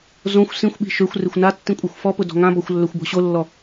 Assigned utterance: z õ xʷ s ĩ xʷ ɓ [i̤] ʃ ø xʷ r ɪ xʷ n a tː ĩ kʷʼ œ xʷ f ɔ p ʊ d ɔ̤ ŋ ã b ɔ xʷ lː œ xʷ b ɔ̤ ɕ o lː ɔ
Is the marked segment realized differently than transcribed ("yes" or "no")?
no